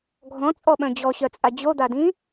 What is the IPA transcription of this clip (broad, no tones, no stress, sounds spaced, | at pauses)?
ɡʱ ɔ̃ t͡sʼ ɔ ɓ œ̃ d͡ʑ ɔ ɕ œ t͡sʼ a d͡ʑ o d̪ a d ĩ